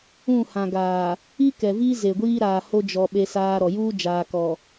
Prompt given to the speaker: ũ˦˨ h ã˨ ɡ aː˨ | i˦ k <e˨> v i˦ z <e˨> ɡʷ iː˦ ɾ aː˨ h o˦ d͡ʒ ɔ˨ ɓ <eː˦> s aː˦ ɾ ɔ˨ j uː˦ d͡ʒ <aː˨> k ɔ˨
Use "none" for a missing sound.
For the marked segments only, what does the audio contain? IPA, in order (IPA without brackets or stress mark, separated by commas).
ɛ˨, e˨, e˦, aː˨